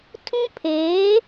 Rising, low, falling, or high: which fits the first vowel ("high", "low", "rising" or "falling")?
high